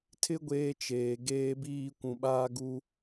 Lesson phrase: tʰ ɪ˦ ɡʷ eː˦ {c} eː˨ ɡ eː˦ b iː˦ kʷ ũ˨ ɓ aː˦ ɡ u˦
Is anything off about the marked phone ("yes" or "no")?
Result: yes